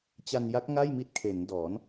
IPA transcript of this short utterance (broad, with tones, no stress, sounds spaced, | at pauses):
t͡ɕ a˧ n j a˦˥ k̚ ŋ a˥˩ j m i˥˩ t̚ kʰ e˩˦ n d ɔː˩˦ n